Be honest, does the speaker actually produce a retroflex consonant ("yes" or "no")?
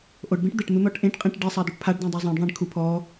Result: yes